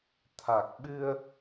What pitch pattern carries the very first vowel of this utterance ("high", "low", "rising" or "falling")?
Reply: low